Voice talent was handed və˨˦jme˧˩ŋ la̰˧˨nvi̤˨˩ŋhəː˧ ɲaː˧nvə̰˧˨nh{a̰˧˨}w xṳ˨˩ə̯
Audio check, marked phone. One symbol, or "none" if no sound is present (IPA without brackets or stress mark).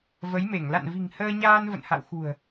a̰˧˨